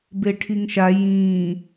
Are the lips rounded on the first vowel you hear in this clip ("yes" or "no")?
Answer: no